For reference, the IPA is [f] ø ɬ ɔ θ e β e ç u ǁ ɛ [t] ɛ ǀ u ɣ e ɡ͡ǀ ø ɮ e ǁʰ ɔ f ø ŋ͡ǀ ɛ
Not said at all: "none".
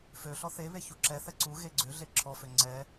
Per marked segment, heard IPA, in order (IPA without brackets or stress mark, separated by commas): f, θ